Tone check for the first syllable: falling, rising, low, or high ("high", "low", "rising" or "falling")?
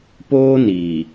high